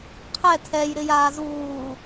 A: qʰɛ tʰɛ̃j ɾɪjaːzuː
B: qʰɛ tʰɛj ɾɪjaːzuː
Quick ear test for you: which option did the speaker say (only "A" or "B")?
B